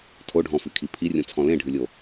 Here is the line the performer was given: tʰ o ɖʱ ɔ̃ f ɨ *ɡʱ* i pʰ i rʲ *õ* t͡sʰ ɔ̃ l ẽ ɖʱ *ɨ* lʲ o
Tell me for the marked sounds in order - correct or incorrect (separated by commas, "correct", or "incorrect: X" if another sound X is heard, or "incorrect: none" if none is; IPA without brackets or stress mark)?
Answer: incorrect: kʰ, correct, correct